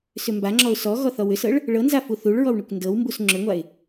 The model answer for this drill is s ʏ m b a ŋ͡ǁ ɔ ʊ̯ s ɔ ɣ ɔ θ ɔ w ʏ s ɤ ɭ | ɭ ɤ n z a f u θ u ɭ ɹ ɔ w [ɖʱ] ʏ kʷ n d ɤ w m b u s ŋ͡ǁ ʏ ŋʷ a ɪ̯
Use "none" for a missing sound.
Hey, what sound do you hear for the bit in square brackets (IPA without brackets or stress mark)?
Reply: ɳ